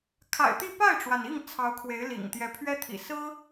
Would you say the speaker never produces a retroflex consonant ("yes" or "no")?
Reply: no